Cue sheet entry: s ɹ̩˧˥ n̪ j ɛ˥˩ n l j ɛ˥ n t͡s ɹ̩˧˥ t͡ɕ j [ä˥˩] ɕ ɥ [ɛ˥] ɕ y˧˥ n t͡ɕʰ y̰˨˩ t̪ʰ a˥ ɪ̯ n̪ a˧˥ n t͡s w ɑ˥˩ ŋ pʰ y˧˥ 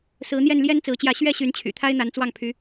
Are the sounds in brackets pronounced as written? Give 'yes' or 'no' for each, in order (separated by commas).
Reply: yes, yes